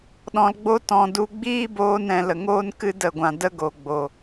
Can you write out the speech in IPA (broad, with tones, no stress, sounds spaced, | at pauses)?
ɗ ɔ̃˧ l ɡ͡b o˦ t ɔ̃˨ d u˧ ɡ͡b iː˦ b oː˦ n ɛ̃˧ l ə˨ ŋ oː˦ n k ɨ˦ d ə˦˨ ɡʷ ã˧ d ə˦ ɡ o˨ ɡ͡b o˨